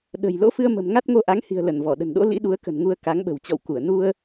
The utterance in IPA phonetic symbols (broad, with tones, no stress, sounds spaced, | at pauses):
ɗ ə̤˨˩ j l o̰˧˥ f ɨ˧ ə̯ m ə̤˨˩ m ŋ a˦˥ t̚ ŋ o˧ ʔ a˨˦ ŋ h i̤˨˩ ə̯ l ə˧˩ n v ɔ˧˩ ɗ ə̤˨˩ n ɗ o̰˧˥ l ḭ˧˥ ɗ u˨˦ ə̯ k ə̤˨˩ n ŋ u˧ ə̯ k a˨˦ ŋ ɓ ə̤˨˩ w t͡ɕ ɔ̰˧˨ w k u˧˩ ə̯ n u˧ ə̯